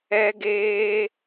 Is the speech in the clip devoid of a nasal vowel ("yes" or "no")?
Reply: yes